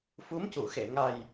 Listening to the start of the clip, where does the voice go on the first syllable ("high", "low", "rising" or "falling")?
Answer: rising